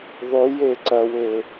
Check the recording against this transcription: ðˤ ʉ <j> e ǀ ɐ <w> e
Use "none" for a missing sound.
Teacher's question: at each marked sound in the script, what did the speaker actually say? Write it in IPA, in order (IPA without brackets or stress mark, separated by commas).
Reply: j, w